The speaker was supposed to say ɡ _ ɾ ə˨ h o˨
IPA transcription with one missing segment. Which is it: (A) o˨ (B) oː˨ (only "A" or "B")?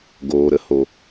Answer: B